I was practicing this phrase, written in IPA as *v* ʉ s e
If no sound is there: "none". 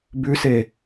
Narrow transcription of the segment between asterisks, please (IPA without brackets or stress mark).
b